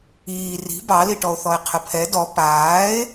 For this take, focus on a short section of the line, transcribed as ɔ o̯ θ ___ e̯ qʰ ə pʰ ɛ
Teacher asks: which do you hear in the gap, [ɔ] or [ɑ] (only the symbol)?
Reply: ɔ